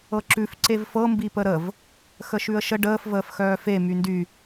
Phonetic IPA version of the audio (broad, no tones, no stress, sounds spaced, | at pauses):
ɤ ǁ ʉ f ǀ e v f ɤ m b i p ə ɾ ə v | x ə ʃ ʉ ə̯ ʃ ə ɖ əː f v əː f x œː f e m y n d y